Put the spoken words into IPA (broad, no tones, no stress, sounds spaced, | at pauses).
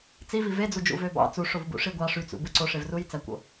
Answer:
t͡s i v i v e d͡z u d͡ʒ ṵ v ø b ɑ̰ t͡s u ʂ o v b ṵ ʂ i ɡʷ ɑ ʂ y t͡s ṵ b ɯ ǀ o ʂ e v r u j t͡s æ kʷ o̰